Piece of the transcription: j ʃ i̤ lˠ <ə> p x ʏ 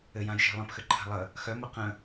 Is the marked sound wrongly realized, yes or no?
yes